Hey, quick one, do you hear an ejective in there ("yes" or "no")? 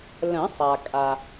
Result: yes